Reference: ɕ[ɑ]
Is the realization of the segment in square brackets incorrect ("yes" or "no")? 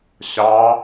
no